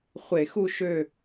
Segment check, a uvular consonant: present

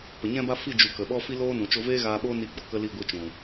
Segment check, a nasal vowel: present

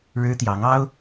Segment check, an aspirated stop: absent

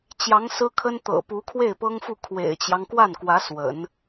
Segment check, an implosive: absent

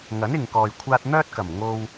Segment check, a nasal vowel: absent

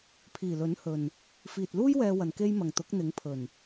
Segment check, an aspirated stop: present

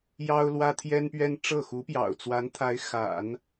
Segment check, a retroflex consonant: present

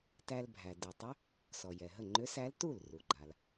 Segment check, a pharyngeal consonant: absent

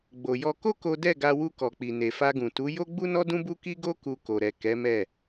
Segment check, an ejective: absent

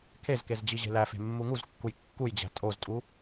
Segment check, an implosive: absent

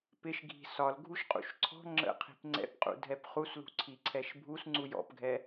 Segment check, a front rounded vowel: absent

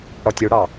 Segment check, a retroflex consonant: present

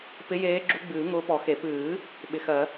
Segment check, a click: present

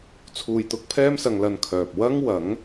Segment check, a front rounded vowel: present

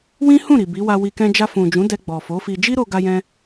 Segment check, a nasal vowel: present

